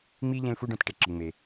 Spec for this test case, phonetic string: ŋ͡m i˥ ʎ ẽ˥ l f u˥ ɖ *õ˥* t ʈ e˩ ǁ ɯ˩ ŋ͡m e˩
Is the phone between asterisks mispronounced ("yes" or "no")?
yes